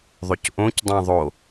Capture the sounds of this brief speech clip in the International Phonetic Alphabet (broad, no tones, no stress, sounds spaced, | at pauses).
ðˤ ʏ c ʔ õ c dˤ ɛ̃ ðˤ o